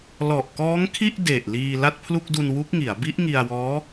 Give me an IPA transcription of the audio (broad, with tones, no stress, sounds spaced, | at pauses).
l ɔ˨˩ ʔ k ɔː˦˥ ŋ kʰ i˥˩ ʔ d e˨˩ ʔ l iː˧ l a˥˩ t̚ pʰ l u˥˩ k̚ d u˧ n w u˦˥ k̚ ŋ i˩˦ a̯ b i˦˥ ʔ ŋ i˧ a̯ w ɔː˦˥